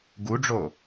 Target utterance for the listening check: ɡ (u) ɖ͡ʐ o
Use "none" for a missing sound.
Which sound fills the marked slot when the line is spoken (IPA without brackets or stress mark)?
u